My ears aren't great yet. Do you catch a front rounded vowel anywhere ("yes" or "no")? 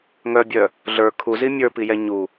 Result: yes